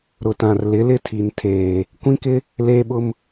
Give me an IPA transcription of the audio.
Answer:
ɾʊ˨tã˨r lɪ˨˦lɪ˦tʰi˨n tʰeː˨ | kʷĩ˦kɪ˦ | leː˦ɓʊ˦m

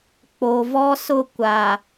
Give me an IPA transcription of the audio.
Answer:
k͡po˨vɔ˦sʊ˦˨ kʷa˨

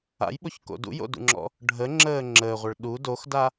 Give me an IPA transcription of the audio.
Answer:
a̰jɓoçko̰ dṵjo̰dṵŋ͡ǁɔ̰ | ɖʱəŋ͡ǁəː ŋ͡ǁəːʁʷəɭ ɗu doxda

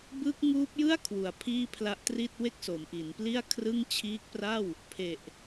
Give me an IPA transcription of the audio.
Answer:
bɯː˦˥k̚ŋuː˦˥p̚jɯ˥˩a̯ kʰwu˩˦a̯pʰiː˥˩pʰla˦˥ʔtri˥˩t̚ we˥˩k̚so˩˦mʔi˩˦npli˥˩a̯ kʰrɯ˥˩ŋ t͡ɕʰiː˦˥k̚pra˥˩w | pʰe˨˩ʔ

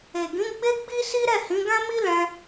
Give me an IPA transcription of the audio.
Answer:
e˨ɡĩ˨˦ ɡ͡be˦ɡ͡bi˦si˦ ɾɛ˦˨hĩ˨˦ɡã˦mi˦ lɛ̃˦

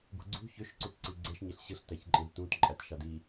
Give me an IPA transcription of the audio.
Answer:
ɡṳɡ͡ǀṳ çøʃ ǀutǀiɡ͡ǀeʃ ɲeɬɕɯɬ tæçǃʼẽztũt ǃʼætʃɑdi

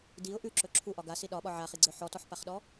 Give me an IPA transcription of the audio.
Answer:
diʊ̯ ʔʉǁɵ ǁʰuʔɒ ɡasi ɗɒɓɒ ʕaχiɡ͡ǀœ ħɔtɔħpaχɗɔ

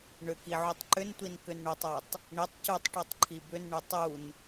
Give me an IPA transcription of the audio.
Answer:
ɳʏki ʕutˤǃʏntʷin kʏnɳotˤotˤ | ɳitˤ cutˤ ʈutˤǃʰibʏnɳʏ tˤun

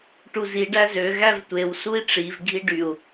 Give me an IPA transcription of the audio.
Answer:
ʈuzi ɖæzø ɣævtʷew sui̯ʈ͡ʂiv ɡʱiɖyu̯

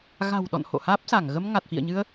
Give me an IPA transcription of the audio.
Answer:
ɣa̤˨˩wɗɔ̰˧˨n ho̰˧˨haː˦˥p̚sa˧˩ŋ ɣə˧mŋa˨˩t̚fḭ˧˨ə̯ɲɨ˧ə̯

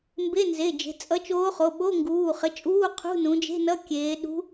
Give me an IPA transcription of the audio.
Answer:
mbe˧˥˧nze˩˧˩d͡ʒe̤˩˧˩ t͡sʼʌ˧˥t͡ʃoː˧˥χo˩˧˩ ɓo˧˥˧ŋɡuː˩˧˩ χə˩˧˩t͡ʃʼuː˧˥˧ qʰṳ˧˥˧nũ˩˧d͡ʒe̤˧˥˧ nʌ˧˥˧kʲeː˩˧ɗṳ˧˥

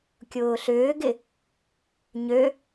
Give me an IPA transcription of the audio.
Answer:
kʲʊːɬʏːɡɪ | ɲø

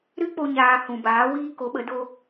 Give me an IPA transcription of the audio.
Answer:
ɾɨ˦k͡po˧ ɲaː˧hũ˨baː˨˦wiː˦ ko˨˦ɓə˨˦do˦

